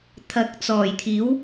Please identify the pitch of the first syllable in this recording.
rising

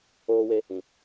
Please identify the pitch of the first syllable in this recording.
high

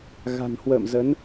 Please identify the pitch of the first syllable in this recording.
low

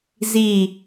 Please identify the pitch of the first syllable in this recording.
falling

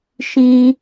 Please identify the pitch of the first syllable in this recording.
high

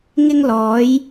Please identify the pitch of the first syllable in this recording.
high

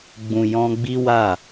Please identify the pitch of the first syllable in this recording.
low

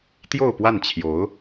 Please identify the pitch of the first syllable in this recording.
falling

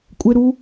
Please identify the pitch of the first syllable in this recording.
high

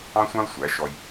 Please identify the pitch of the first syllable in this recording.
high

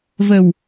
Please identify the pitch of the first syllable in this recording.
low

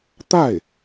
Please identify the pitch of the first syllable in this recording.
falling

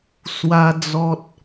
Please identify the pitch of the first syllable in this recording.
high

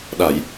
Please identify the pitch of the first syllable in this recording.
low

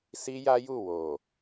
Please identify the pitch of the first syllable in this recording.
high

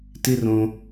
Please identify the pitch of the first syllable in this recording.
high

